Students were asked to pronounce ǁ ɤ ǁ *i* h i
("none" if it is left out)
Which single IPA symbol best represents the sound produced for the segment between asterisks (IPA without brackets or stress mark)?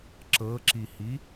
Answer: i